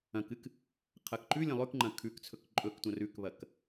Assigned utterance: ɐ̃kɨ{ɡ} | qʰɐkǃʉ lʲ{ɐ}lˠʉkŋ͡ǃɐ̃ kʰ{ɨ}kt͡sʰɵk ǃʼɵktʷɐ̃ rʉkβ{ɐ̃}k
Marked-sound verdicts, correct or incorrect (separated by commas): incorrect, incorrect, incorrect, incorrect